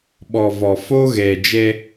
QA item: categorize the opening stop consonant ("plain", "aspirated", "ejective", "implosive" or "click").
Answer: implosive